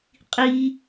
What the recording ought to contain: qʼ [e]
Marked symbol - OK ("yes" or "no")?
no